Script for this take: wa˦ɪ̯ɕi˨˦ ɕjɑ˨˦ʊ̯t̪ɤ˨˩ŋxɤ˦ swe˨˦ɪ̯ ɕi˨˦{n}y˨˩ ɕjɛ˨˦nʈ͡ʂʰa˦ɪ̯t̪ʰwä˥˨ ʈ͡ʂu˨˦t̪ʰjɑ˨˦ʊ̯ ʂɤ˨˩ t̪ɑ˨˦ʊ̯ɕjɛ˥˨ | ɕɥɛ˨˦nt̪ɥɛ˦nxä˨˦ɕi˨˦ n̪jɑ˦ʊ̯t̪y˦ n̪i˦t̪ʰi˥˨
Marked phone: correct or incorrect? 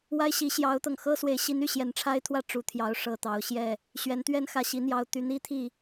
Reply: correct